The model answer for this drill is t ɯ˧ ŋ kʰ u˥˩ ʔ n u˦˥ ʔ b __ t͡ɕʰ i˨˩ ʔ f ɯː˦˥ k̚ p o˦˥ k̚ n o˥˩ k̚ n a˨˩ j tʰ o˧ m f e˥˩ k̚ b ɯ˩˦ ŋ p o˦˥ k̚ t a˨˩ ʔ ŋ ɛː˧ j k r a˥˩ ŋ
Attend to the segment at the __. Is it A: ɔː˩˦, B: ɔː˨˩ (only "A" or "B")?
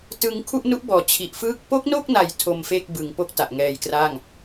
A